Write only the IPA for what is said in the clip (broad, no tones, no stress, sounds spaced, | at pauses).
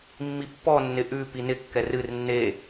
mː i pː ɔ nː ɪ ʔ ʉ p i n ɪ kː ɛ r ɨ r nː e